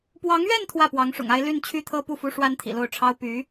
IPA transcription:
pwɑ˧˥ŋɥɛ˥˧n t̪ʰwä˥˩pwɑ˧˥ŋʂʊ̰˨˩ŋa˥ɪ̯ ly˥˧n t͡ɕʰy˥˩t̪ʰɤ˥ pu˥˩fu˥ ʂwa˥nt̪ʰḭ˨˩lo˥˩ʊ̯ʈ͡ʂʰɑ˥ʊ̯ py˧˥

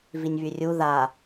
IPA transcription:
vinʲβyrʲu ða

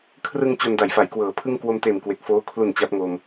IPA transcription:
kʰrɯ˧ŋ t͡ɕo˧nda˩˦jfa˩˦j kwɤː˩˦pʰɯ˥˩ŋ kwo˧mteː˨˩m kwe˨˩k̚foː˦˥ kʰlu˨˩n t͡ɕa˦˥p̚ŋo˧m

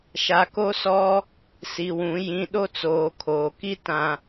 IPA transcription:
ʃa˨ko˦sɔ˦ | si˨wũ˨˦ jĩ˨ ɗo˦t͡soː˨kʰoː˨ki˦ tã˨

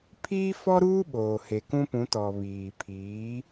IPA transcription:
pʰiː˦fɔ˦ɾuː˦ ɓoː˨he˨kũ˦pũ˨˦ tɔ˨βiː˨ pʰiː˨˦

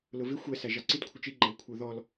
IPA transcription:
lʊvɪ xʷɛ sæʒɑǀid kʷʰɪt͡ʃi ɡ͡ǃɛwkʷʰə˞ðɔl

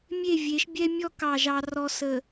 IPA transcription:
mʲe˦˨vʲe˨˦ʃbʲɛ˦mʲɔ˦ kɑ˨ ʒɑ˨rɔ˨ sə˨

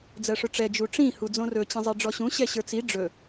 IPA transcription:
d͡zɜʂɵʈ͡ʂɛ d͡ʒuʈ͡ʂĩ hud͡zõrɵ t͡ɕĩzˤiɖ͡ʐɔɕũ ɕɛɕə˞t͡si ɖ͡ʐɵ

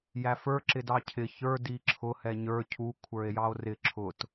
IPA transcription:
jæfə˞ ǁɪdɑcʰɪ çə˞ diǁʰʊ hɛɲə˞ cʰu kʷʰə˞e̯jɑo̯rɪ ǁʰʊt

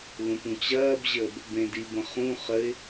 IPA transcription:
lũpũt͡ɕɐːbʑəːb | bẽdibə̃ χũ χəɪ̯

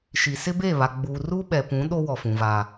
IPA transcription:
ʃi˨sɪ˦ beː˦˨βa˨ ɡ͡buː˨ruː˦ɓɛ˨pũ˨˦ ɗo˦ wɔ˨fũ˨vaː˨

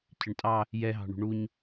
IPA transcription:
cʰɪɳtʼɑ | jɛɦɑ̤ɳṳ ɳuɲ

